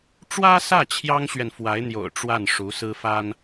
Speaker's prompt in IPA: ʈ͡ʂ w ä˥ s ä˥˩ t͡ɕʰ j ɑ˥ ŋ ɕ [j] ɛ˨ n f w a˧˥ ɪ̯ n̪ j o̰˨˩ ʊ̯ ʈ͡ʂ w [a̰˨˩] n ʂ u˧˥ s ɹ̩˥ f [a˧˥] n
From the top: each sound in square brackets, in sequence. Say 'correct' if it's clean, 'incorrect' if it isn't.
incorrect: ɥ, incorrect: a˥˩, incorrect: a˥

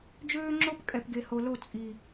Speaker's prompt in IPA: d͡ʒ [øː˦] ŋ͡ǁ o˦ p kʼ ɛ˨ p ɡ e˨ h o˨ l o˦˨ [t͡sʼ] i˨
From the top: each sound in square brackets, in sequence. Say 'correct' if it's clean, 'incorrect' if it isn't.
correct, correct

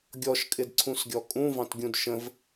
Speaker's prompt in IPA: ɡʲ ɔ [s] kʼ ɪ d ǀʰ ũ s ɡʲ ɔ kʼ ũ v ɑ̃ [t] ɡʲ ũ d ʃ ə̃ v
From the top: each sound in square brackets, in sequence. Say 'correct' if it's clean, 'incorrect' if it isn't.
incorrect: ʃ, correct

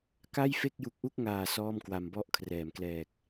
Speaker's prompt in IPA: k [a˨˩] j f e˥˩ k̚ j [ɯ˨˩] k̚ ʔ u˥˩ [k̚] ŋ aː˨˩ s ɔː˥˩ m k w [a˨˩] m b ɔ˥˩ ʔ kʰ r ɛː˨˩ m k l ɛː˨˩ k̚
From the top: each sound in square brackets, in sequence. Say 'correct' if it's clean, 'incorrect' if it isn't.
incorrect: a˥˩, incorrect: u˨˩, correct, incorrect: a˧

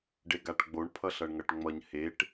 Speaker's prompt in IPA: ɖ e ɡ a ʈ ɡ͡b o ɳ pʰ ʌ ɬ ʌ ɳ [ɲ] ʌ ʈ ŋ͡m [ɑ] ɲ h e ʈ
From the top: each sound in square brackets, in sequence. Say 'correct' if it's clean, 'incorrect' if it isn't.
incorrect: ŋ, incorrect: ʌ

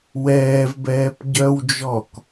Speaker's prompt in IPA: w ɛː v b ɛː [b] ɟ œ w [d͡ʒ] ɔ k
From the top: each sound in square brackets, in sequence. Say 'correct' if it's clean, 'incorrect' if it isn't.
incorrect: p, correct

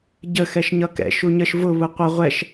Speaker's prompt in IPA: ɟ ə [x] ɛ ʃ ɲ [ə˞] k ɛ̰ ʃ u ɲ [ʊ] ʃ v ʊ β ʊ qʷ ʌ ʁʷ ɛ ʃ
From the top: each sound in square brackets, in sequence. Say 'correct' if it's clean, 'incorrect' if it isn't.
correct, incorrect: ʌ, incorrect: ə

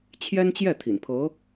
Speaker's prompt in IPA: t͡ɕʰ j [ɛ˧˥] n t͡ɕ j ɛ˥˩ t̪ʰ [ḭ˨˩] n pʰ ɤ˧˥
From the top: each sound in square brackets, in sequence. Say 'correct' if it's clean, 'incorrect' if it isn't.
incorrect: ɛ˥, correct

